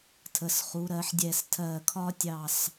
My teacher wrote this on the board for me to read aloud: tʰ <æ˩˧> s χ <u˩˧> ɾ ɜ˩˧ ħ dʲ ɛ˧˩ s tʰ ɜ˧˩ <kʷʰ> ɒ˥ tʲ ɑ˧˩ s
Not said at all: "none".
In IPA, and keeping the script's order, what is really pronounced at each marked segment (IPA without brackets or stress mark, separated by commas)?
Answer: ə˩˧, u˩˧, kʰ